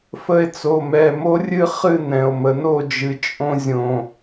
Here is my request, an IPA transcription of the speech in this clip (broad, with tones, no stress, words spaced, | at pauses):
fə˧e̯t͡so˩˧˩mɛ˩˧˩ mo˥rʲɨ˥ χɨ˥˩ nɛ̃˩o̯mə˩no˥˩d͡ʒɨ˩ t͡ʃʼõ˧zʲõ˩